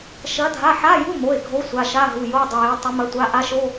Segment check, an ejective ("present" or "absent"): absent